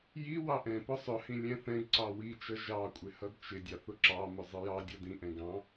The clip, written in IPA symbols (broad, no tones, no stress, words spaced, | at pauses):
ji wɑʔɛ̃pʊ sˤʊhĩ lʲɛ̃θɛ̃ɡǀɑ wit͡ʃʌ ʒɑkʷʼɪ hʌdt͡ʃɪdʲɑθ ʊǁɑmʊ zˤɪjɑdʲʌ dĩʔɛ̃ ɡɑ̃